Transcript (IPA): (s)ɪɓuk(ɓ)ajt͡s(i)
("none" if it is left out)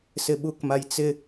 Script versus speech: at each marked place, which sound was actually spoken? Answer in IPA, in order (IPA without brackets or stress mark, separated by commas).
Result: s, m, ɪ